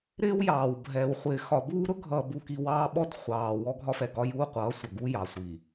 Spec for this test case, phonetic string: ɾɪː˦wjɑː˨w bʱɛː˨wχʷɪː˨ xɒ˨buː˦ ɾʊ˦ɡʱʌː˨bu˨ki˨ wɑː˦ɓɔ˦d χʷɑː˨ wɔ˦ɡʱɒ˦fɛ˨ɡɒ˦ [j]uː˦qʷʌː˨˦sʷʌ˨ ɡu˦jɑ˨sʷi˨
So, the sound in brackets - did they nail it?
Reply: yes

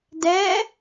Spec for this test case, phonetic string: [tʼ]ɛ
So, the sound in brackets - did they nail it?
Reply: no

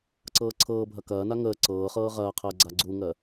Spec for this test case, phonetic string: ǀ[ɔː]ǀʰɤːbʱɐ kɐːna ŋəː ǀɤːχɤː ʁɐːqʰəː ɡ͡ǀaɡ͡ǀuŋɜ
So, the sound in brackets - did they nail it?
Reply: no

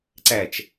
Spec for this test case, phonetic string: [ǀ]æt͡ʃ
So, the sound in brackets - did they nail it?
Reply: yes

